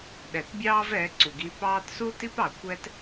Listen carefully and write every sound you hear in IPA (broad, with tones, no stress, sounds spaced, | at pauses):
ɗ ɛ˨ t bʲ ɑː˦ v ɛ˨˦ ǀ u˨ ɡ i˧ p ɑː˦ t s u˦ t i˦ p ɑ˨ kʷ ɛ˦ t